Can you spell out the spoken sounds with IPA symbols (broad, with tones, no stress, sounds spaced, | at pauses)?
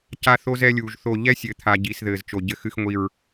c a˦ θ o˦ z ɛ˦ lʲ uː˨ ʒ θ o˦˨ ʎ ɛ˦ sʲ ɘ˨ t̪ʰ a˨ ɟ iː˨ s ð ɘː˨ z t͡ʃ o˨ ɟ ɘ˦˨ x ɨ˦ x ŋʷ i˦˨ ɹ